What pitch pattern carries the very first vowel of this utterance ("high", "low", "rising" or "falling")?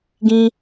high